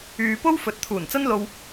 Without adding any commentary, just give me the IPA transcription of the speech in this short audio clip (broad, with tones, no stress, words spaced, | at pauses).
yː˨po˥wfɵ˨t̚ t̪ʰuː˨˩nt͡sɐ˥n lo˧w